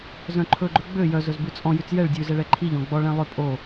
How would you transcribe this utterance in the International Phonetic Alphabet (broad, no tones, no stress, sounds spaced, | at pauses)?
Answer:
z œ̃ ǃʰ ɵ ɡ͡ǃ ɵ ɡ͡b ø j œ z ɵ z b ʉ t͡sʼ ɔ̃ j ʉ t͡s j ɛ ɭ dʲ ʉ z ɛ ɭ ɛ ǃʰ i ʎ ɔ̃ ɡ͡b ɔ ɭ ɛ̃ lˠ ø pʼ o